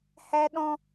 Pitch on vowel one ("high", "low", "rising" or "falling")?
high